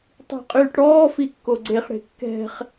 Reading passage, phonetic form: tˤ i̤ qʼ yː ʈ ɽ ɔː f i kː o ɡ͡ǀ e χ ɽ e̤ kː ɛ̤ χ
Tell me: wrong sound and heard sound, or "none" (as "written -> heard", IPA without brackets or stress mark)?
none